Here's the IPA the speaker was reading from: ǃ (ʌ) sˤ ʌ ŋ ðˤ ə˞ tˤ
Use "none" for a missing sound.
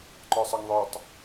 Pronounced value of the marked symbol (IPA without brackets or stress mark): ə˞